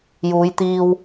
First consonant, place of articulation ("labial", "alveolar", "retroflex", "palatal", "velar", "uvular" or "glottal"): palatal